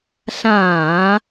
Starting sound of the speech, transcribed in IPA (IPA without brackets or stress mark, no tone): ɬ